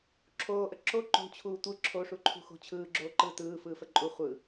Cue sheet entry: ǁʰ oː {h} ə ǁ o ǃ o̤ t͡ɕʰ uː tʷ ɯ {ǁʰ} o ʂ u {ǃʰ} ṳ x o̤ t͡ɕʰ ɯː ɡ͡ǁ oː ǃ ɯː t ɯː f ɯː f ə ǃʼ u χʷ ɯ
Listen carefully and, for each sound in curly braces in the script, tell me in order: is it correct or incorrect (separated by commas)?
incorrect, correct, correct